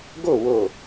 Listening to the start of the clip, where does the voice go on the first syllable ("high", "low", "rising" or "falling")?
falling